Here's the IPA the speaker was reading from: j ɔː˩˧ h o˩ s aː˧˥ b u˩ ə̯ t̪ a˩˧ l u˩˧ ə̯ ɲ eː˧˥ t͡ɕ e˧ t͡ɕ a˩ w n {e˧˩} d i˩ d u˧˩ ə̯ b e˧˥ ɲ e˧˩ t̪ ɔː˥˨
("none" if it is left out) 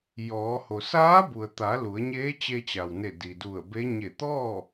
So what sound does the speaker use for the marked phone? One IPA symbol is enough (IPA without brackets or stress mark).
e˧˩